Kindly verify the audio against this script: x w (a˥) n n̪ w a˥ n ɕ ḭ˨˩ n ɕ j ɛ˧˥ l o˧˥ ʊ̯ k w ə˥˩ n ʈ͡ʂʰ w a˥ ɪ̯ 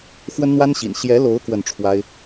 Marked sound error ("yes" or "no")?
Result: yes